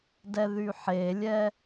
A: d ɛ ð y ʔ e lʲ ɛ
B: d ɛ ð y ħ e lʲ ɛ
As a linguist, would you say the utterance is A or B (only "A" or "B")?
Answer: B